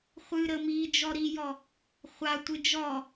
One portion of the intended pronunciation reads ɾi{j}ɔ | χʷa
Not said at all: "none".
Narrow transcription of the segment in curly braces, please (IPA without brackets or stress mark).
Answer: j